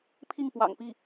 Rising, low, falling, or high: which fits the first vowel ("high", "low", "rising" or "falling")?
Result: falling